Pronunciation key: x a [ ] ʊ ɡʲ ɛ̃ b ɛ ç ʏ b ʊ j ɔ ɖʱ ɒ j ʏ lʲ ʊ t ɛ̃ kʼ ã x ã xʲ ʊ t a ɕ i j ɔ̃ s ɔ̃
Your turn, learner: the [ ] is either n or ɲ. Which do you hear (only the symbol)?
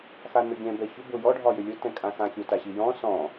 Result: n